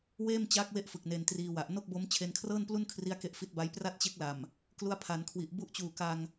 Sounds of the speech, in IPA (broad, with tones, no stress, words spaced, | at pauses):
weː˥˩mt͡ɕaː˦˥k̚we˦˥ʔ fɯ˨˩k̚ne˧ntriː˧wa˨˩ʔ no˥˩k̚bo˦˥m t͡ɕʰe˧nkʰrɤː˥˩nplu˥˩nkʰri˦˥a̯ ke˦˥ʔfi˦˥t̚ba˦˥j pra˥˩t̚t͡ɕe˦˥k̚la˨˩m | klu˦˥a̯pʰa˩˦nkʰwi˨˩ʔ bu˦˥ʔt͡ɕuː˨˩ ka˧ŋ